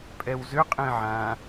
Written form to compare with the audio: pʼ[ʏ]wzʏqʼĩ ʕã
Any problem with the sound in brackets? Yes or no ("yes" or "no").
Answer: yes